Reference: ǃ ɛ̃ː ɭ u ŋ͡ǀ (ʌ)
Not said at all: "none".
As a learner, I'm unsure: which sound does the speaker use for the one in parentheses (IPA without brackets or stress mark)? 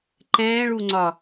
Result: ɒ